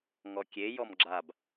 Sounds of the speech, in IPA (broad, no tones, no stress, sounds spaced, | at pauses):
ŋ ɔ kʲ e j ɔ m ɡ͡ǁ a b